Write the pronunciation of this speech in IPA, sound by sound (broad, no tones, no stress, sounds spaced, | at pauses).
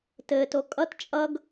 t ɘ t o kʼ ʌ t t͡ʃʼ ʌ ɡ